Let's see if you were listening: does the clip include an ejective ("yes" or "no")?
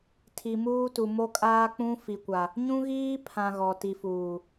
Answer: yes